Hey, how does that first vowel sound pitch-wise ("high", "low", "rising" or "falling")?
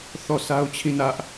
falling